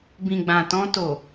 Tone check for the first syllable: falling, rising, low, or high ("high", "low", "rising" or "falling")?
low